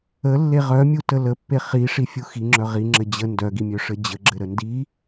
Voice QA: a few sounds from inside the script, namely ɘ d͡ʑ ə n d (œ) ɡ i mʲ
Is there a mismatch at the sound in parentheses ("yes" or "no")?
no